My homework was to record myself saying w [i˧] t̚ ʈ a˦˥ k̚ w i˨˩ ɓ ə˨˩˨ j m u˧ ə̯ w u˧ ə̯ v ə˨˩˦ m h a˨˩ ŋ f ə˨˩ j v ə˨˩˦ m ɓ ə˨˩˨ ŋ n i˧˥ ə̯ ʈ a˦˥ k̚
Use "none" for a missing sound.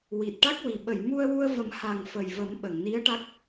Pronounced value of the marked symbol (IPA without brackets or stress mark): i˨˩